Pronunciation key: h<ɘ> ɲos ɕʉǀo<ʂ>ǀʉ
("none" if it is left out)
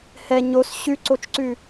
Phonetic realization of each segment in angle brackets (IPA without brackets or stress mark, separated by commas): ɛ, t͡ʃ